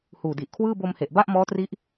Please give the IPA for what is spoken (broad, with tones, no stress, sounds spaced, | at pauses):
h uː˨˩ d i˨˩ ʔ kʰ w ɯː˥˩ b o˧ m h e˨˩ ʔ b a˥˩ ʔ m ɔː˦˥ t r i˦˥ ʔ